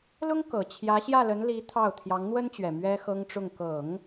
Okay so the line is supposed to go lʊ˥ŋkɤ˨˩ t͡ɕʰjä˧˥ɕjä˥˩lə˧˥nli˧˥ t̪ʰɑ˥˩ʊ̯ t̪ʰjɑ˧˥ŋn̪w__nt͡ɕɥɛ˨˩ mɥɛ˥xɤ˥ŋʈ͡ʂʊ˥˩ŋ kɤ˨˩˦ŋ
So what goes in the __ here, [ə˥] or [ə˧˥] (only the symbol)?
ə˥